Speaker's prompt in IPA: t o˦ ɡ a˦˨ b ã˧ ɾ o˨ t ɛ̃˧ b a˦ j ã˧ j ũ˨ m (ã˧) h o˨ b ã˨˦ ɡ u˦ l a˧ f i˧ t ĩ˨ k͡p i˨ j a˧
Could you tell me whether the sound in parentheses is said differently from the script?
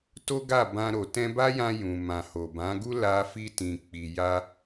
yes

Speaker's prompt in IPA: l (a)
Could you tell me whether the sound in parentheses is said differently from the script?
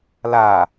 no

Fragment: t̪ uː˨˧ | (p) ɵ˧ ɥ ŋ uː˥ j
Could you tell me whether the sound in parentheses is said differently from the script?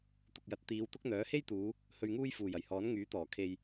yes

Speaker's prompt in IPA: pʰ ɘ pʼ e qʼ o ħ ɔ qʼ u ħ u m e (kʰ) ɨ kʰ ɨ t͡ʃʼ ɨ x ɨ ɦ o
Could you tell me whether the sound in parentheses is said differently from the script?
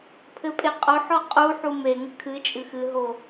yes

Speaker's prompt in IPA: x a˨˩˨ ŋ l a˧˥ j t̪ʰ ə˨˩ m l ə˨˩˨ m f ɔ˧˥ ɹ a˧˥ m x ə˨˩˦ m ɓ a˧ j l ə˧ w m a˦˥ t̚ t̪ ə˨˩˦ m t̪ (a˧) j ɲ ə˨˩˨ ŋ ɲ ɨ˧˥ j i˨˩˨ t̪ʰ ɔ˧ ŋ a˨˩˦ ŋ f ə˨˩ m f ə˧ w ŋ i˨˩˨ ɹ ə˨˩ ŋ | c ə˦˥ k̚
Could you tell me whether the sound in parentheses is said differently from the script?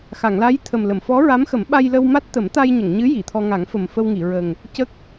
no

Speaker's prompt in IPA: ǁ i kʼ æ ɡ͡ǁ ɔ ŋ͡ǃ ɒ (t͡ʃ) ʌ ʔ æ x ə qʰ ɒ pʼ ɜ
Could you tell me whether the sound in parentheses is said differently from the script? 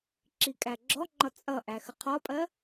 yes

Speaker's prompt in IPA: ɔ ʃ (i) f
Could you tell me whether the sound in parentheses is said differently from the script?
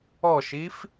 no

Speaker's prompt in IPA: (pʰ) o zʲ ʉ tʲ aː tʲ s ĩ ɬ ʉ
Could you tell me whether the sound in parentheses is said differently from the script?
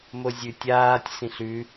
yes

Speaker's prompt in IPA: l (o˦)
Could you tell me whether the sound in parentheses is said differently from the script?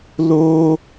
no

